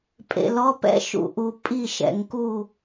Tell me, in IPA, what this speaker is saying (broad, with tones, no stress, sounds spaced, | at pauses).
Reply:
pʼ ḛ˨ l ɔ˧˥˧ p ɛ̰˥˨ ʃ ṵ˨ ʔ u˨ pʼ i˥˨ ʃ ɛ̰˨ ŋ k u˥˨